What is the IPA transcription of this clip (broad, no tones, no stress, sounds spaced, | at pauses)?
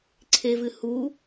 ǀʰ e v ɨ h u